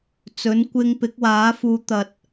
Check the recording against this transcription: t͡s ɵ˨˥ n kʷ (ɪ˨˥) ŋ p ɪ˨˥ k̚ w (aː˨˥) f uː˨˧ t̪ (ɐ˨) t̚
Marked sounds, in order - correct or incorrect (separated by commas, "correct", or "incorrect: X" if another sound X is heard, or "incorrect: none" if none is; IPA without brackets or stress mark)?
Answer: incorrect: ɪ˧, correct, correct